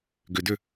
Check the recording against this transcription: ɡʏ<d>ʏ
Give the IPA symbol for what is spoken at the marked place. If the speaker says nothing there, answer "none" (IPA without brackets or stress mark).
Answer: d